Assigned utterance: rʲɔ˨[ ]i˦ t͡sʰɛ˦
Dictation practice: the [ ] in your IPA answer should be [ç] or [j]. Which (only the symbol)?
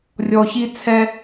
ç